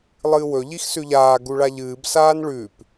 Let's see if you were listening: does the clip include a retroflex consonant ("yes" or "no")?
yes